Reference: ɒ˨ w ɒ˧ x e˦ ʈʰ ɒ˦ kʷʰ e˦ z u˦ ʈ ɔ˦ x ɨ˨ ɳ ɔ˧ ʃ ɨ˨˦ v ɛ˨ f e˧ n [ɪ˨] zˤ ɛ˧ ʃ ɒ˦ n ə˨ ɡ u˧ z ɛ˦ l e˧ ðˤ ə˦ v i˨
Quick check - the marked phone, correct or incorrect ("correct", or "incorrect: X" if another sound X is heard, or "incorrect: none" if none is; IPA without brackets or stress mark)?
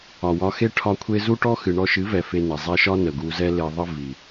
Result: incorrect: ɛ˨